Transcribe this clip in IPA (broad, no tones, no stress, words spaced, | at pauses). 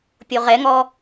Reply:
pʲoʁɛŋɔ